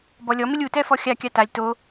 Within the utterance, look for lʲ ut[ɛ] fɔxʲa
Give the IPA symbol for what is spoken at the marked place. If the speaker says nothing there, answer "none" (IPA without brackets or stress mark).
ɛ